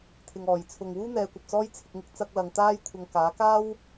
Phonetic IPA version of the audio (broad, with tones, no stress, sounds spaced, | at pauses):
t̪ʰ ɪ˨ ŋ ɔː˨˩ j t͡sʰ ʊ˨ ŋ w uː˥ n̪ ɛː˨˧ kʷ ɐ˨ p̚ t͡s ɔː˥ j t͡sʰ ɪ˧ k̚ ŋ ɪ˥ k̚ t͡s ɐ˥ k̚ l ɐ˧ ŋ t̪ aː˥ j kʷʰ ɐ˧ ŋ k aː˨˥ k aː˥ w